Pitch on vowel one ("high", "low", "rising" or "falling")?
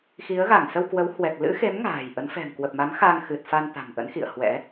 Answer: rising